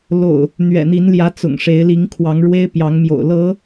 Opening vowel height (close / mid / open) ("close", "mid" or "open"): mid